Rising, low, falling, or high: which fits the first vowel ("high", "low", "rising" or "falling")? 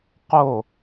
falling